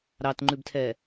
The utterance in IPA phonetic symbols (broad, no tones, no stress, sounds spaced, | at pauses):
ɾ ɑ t ŋ͡ǃ ʉ b tʰ ɛ